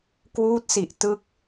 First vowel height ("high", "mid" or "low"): high